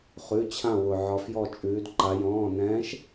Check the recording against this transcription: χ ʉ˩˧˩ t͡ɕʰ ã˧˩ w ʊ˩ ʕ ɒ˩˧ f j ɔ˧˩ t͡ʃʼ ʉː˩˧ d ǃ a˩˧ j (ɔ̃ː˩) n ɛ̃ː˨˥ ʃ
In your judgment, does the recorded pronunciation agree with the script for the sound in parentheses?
no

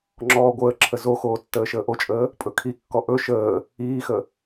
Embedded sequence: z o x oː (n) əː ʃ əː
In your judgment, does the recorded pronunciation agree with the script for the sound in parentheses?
no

